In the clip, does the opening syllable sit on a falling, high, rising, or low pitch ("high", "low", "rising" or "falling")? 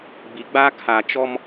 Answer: low